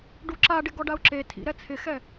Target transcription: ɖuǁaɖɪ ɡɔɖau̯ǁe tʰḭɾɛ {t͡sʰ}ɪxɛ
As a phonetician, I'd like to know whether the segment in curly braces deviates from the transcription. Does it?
no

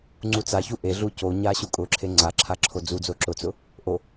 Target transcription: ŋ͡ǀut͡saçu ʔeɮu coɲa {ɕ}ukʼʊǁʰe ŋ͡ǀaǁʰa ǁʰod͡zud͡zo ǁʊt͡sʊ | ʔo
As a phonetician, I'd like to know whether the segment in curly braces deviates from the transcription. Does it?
no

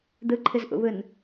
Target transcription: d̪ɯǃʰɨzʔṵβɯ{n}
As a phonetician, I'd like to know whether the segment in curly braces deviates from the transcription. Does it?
no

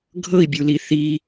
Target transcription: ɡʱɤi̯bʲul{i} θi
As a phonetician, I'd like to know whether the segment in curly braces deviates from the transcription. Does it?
no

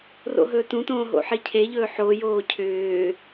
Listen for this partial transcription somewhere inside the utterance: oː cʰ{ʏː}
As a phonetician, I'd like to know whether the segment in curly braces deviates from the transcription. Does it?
no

